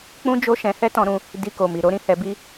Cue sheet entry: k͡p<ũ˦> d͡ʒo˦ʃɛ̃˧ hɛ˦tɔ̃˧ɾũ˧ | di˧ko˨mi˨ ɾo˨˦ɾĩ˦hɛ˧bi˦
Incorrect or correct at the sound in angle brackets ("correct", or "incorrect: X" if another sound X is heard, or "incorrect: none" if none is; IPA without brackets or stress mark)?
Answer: correct